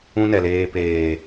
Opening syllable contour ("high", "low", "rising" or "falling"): high